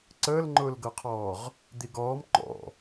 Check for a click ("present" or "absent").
present